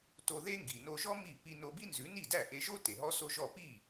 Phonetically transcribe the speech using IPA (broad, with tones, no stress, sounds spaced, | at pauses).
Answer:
t o˧ ð e˥ ŋ ɡ i˩ n o˧ ʒ ɔ˥ m i˥˩ p i˧ n o˧ b i˥ n z ʉ˩˥ n i˥˩ d æ˥˩ ʔ e˧ ʒ o˥ t e˩ ɦ ɔ˥ s o˥ ʒ ɔ˥˩ p i˥˩